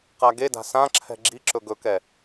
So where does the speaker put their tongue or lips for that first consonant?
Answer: uvula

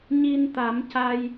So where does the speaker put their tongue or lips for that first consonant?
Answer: palate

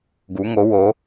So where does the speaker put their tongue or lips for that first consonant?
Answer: velum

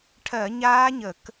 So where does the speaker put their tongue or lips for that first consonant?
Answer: retroflex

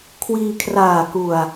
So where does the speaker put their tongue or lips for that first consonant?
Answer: velum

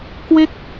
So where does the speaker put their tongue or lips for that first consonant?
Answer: velum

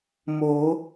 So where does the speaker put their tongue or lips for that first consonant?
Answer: lips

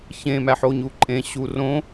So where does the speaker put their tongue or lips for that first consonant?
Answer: palate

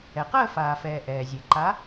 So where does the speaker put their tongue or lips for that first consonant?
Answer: uvula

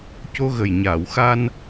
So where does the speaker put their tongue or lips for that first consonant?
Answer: palate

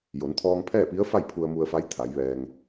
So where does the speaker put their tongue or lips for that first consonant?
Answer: palate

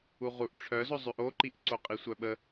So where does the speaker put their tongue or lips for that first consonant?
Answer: uvula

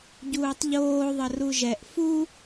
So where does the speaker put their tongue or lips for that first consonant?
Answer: palate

